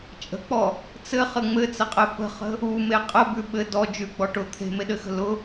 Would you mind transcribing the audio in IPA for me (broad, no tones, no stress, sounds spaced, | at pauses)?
t͡ʃʼ ə̤ k͡p ɔ | t͡s ɘ χ ə ŋ͡m ɘ t͡s ə qʼ ɛ p ə̤ χ ə̤ | u m e qʼ ə b ʉ ɓ ɘ d ɔ d͡ʒ ʉ ɡ͡b ɔ ʈ ʊ t̪ʰ e̤ m e ɗ ɘ x ə̤ l ʊ